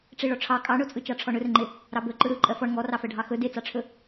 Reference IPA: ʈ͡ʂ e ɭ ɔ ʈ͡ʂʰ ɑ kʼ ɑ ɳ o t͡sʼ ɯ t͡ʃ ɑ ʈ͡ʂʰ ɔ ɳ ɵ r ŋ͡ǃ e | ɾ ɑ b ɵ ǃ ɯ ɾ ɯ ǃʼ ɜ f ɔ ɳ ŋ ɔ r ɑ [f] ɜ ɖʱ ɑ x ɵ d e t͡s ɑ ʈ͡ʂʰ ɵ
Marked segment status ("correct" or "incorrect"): correct